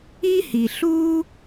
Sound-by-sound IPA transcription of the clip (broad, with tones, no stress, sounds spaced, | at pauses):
i˥ h i˩ ɬ uː˥